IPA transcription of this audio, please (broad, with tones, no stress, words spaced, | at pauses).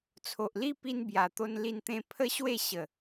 t͡sʰo˨ʔli˦ pi˦nbja˨˩t̪o˦n li˥˧nt̪ẽ˦ pʰə˦ɕwe˥˧ ɕə˨˩